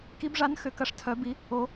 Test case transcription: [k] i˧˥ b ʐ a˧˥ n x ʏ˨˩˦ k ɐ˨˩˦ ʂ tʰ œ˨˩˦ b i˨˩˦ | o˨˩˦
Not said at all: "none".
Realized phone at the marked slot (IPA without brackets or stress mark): k